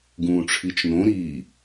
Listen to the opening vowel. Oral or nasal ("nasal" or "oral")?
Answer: nasal